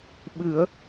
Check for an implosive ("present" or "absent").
present